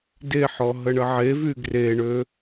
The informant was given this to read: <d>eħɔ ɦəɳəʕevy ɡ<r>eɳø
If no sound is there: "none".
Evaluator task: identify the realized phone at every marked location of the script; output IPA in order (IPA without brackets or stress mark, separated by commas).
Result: d, r